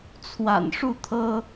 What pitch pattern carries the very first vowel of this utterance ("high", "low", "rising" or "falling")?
low